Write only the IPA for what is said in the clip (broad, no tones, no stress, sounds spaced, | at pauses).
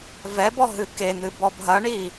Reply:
v ɛ b ɔ ɦ ɨ k e n̪ ɨ b ɔ b ɦ ɐ ɳ i